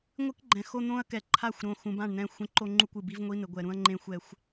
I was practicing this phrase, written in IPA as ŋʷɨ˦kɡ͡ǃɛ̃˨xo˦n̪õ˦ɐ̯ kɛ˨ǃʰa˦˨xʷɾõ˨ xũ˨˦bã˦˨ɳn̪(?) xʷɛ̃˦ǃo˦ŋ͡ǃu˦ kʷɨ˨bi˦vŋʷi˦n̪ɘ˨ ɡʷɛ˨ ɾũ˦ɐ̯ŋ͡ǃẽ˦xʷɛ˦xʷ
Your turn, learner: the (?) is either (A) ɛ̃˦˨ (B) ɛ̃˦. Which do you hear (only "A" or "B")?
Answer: A